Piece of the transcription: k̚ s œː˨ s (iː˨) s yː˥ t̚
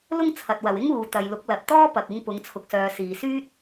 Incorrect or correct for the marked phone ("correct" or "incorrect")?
correct